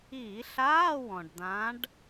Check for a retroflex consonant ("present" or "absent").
present